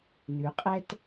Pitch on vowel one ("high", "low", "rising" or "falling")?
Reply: rising